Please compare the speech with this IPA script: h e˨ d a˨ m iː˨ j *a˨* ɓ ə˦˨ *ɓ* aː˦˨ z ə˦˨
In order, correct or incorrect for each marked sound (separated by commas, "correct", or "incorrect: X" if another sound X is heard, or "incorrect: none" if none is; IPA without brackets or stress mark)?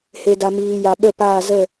correct, incorrect: p